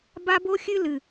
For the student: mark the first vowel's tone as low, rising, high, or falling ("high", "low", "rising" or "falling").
high